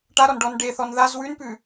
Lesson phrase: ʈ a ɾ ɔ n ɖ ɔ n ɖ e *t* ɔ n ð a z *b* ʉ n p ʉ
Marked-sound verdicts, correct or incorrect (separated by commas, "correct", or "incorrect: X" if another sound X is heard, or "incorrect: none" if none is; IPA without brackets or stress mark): incorrect: θ, incorrect: w